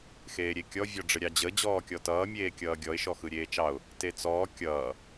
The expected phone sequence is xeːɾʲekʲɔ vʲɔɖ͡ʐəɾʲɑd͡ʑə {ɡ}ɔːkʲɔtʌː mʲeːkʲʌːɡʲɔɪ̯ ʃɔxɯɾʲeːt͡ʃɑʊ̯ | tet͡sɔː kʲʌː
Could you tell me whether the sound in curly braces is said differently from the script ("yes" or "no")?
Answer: yes